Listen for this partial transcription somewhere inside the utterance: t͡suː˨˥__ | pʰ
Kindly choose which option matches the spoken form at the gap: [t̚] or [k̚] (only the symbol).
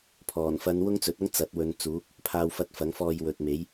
k̚